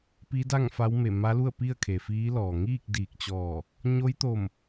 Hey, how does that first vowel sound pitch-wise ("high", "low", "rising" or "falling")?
rising